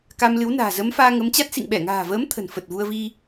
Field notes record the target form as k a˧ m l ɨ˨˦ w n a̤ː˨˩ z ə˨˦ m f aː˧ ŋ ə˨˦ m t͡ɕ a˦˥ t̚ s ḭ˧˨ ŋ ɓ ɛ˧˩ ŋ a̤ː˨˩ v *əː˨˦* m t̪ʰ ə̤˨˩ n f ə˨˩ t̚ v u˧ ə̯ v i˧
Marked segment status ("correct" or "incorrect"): correct